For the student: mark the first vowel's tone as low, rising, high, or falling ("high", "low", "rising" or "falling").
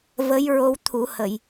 rising